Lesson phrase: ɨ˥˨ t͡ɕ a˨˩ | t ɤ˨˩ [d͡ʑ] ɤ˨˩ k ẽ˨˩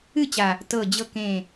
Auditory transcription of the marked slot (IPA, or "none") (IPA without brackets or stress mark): d͡ʑ